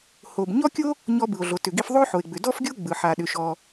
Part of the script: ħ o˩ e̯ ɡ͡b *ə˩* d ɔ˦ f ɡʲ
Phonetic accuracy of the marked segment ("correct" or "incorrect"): incorrect